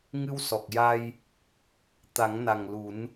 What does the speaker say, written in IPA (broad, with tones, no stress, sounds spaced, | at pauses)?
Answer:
ŋ ɨ˧ w s ɔ˨˩ k̚ j a˧ j | t̪ a˨˩˦ ŋ n a˨˩ ŋ l u˨˩˦ n